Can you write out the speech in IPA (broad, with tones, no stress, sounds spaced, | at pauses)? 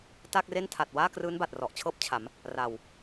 t aː˥˩ k̚ r e˥˩ n tʰ a˨˩ t̚ w aː˥˩ k r ɯː˦˥ n b a˨˩ t̚ r ɔ˨˩ ʔ t͡ɕʰ ɤː˥˩ p̚ t͡ɕʰ a˩˦ m | r a˨˩ w